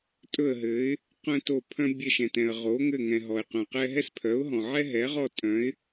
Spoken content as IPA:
tʼ ɵ˦˨ ə̯ ɦ ɘ˨˥ ɪ̯ | q œ̃˥ t o˦˨ pʰ œ̃˥ bʲ ɛ˦˨ ʃ ɛ̃˨ t ɛ̃˨ ə̯ ʁ o˨˥ ŋ ɘ˦˨ ŋ ɛ̃˨ ɦ ɔ˨ ɪ̯ q œ̃˨ q ɛ˥ ɦ ɛ˥ s pʰ œ˨˥ ʊ̯ ɦ ɔ̃˨ ʕ ɛ˥ ɦ ɛ˨˥ ʁ ɔ˦˨ tʼ œ̃˨˥ ɪ̯

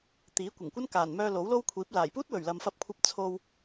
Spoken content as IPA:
t̪ iː˨˥ kʷ ɐ˨˩ ŋ kʷ ɐ˥ n k aː˨˩ n m œː˧ l o˨˥ w l o˥ w kʷʰ iː˨˥ p̚ l aː˨˩ j p uː˥ t̚ w ɵ˨˩ ɥ l ɐ˨ m f ɐ˧ p̚ kʷʰ ɐ˧ p̚ t͡sʰ o˧ w

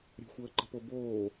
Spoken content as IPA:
ɾʲ ə̤ xʷ əː ǃ ə̤ p o b oː

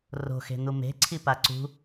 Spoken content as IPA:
r o̤ x e̤ n̪ u m e̤ ǀʰ i p a ǀ ṳ

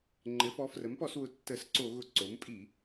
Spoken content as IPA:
ŋ͡ǃ ɘ˩˥ f ɔ˩˥ f r ə˩˥ m p ɔ˧˩˧ s w ʊ˩˥ tː ə˧˩˧ s ǀ o˧˩˧ ɣ ʊ˧˩˧ ǀ o˩˥ m pʼ i˧˩˧

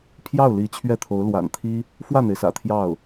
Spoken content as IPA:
pʰ j ɑ˥˩ ʊ̯ l i˧˥ t͡ɕʰ ɥ ɛ˥˩ t̪ʰ o˧˥ ʊ̯ l w a̰˨˩ n t̪ʰ i˥ | f w ä˥˩ n̪ e˩ ɪ̯ s ä̰˨˩ t̪ʰ j ɑ˥˩ ʊ̯

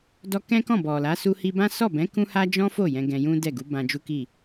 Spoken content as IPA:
d ɔ˧ k ɛ̃˦ k ɔ̃˦˨ b ɔ˨ l a˨˦ s u˧ h i˧ b ã˦ s ɔ˦˨ b ɛ̃˨˦ k ũ˦ h a˦ d͡ʒ ɔ̃˦ f o˦˨ j ɛ̃˧ ɡ ɛ̃˧ j ũ˦ d ɛ˦˨ ɡ u˨˦ b ã˧ d͡ʒ u˦ k i˦˨

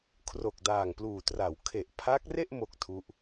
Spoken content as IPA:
kʰ r o˨˩ k̚ d aː˨˩ ŋ p l uː˨˩ t r a˩˦ w kʰ e˨˩ ʔ pʰ a˦˥ k̚ r e˥˩ ʔ m o˥˩ k̚ tʰ u˦˥ ʔ

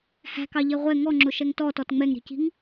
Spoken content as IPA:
h æ̤ k ɑ ʎ ɛ ʁʷ ɛ ŋ ɔ ŋ͡ǁ ʊ ʃ ɛ ŋ t ɔ t ɔ t ŋ͡m ɛ ŋ ɾ i̤ c i̤ ŋ

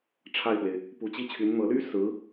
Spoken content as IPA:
ʈ͡ʂʰ a˥˩ ɪ̯ f w e˩ ɪ̯ | p u˧˥ t͡ɕ i˥ t͡ɕʰ y˧˥ n n̪ ɤ˧˥ l y˥ s ɹ̩˧˥

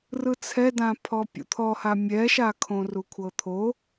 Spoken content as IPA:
r ɯ t͡sʰ ɛ d ã pʰ ɔ pʲ ṵ t̪ʰ ɔ h a mʲ ɛ ʃ a kʰ õ r u kʷʰ ɤ t̪ʰ o

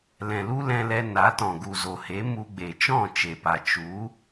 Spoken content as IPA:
l ɛ̃˨ l u˦ l ɛ̃˧ l ɛ˧ n a˨˦ t ɔ̃˨ ɡ u˨ z o˨ h e˨˦ m u˧ ɡ͡b e˨ t͡ʃ ɔ̃˦˨ t͡ʃ e˨ p a˨ t͡ʃ u˨˦

